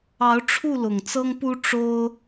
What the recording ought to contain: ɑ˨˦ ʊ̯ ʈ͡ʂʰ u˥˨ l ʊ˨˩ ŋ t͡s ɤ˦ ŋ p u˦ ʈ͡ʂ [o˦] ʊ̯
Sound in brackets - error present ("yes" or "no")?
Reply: no